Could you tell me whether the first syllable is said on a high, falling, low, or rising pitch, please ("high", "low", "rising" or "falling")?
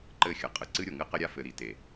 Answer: falling